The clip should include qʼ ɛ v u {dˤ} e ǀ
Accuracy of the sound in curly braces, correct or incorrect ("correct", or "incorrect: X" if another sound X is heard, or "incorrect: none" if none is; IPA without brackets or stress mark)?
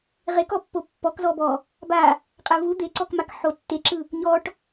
incorrect: d̪